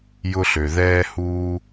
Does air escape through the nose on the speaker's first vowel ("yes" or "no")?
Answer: no